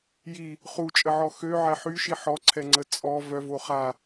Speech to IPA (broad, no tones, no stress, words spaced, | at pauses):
ji | χut͡ʃʼəʕɔ xøʕɛ ħyʃi ħɔǀʰɛŋ͡ǀə t͡sʼɔ vœvo χa